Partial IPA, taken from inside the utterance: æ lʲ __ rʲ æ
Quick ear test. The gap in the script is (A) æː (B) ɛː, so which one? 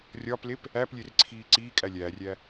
A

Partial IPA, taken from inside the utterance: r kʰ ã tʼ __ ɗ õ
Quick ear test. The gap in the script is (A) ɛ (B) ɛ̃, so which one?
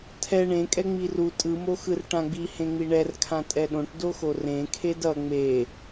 A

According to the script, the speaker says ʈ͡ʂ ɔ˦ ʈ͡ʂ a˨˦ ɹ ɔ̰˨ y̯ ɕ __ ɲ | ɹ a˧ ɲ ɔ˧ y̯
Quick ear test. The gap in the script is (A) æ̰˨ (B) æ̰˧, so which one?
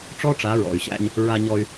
B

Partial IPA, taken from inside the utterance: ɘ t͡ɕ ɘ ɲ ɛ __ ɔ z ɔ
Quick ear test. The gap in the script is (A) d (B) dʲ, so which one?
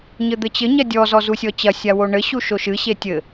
B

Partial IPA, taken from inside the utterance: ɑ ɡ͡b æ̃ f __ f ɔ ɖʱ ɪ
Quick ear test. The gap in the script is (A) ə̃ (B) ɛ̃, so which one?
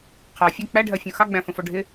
A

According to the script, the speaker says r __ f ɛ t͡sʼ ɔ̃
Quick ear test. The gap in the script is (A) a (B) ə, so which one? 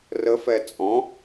B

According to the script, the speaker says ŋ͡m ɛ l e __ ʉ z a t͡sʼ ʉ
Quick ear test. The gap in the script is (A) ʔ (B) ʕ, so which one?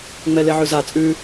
B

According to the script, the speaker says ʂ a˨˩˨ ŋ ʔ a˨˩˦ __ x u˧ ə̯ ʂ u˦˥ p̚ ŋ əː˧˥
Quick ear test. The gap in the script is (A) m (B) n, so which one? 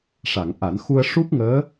B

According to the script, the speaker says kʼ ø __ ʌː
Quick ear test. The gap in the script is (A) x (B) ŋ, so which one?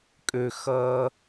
A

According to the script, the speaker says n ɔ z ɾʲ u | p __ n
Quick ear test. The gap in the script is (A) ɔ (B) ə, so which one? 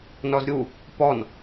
A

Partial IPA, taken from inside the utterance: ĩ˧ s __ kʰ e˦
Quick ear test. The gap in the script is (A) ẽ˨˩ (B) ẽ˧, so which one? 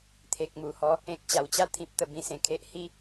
A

